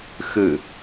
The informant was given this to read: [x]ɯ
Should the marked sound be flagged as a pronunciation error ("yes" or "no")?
no